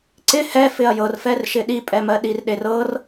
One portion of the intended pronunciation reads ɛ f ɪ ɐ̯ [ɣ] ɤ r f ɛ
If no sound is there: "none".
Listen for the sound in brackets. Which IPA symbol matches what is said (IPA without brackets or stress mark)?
j